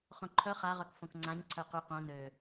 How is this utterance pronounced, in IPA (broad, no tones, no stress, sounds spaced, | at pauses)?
χ õ ǃʰ œ χ a ʁ œ k f õ k ŋ͡ǀ ã ɲ ǀʰ œ q y q õ n ø